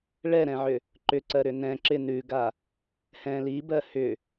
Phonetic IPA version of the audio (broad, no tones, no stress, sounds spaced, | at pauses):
ɭ ɛ ɾ ɛ̃ ʕ ʏ | ǃ ʏ ǀ ɜ ɾ ʏ n ɛ̃ ǁ ɪ n ʉ ɡ a | h ɛ̃ l i b ɜ h ʏ